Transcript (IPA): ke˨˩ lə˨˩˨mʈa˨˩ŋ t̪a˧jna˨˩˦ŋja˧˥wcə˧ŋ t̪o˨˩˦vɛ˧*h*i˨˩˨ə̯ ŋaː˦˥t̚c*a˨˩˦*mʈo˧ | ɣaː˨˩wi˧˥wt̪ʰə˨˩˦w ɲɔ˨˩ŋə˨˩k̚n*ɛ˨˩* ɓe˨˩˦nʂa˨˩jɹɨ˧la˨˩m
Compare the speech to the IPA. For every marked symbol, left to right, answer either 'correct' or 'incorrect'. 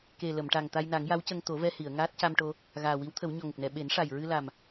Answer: correct, incorrect, correct

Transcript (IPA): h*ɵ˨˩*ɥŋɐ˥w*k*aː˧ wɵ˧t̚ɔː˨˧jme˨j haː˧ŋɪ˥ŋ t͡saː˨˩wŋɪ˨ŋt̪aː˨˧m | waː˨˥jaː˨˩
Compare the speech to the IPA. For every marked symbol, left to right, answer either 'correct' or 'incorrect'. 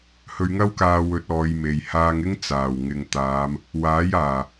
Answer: incorrect, correct

